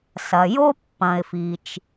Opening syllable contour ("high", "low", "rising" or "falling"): low